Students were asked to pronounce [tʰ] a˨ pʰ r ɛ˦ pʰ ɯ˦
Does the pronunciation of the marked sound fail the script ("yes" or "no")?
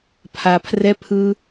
yes